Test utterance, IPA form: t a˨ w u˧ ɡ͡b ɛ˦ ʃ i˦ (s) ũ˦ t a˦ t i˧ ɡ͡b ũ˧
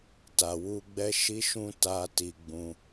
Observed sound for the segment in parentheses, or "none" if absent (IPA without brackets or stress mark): ʃ